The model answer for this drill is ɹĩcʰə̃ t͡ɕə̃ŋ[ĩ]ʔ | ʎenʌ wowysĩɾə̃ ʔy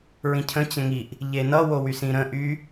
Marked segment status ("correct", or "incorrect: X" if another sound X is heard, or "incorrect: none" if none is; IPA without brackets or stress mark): incorrect: i